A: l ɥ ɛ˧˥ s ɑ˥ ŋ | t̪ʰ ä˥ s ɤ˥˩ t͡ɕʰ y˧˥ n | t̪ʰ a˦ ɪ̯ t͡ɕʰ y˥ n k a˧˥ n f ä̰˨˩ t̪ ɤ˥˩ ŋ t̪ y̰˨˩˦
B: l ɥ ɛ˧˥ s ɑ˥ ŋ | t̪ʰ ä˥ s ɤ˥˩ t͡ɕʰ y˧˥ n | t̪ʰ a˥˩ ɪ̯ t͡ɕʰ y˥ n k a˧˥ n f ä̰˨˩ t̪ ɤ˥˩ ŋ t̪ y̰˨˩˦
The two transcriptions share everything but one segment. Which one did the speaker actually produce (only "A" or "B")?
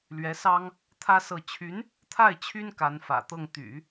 B